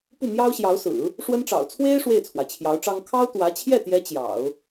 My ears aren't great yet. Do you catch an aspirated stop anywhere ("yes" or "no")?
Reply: yes